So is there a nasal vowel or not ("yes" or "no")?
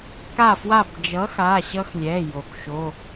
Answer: no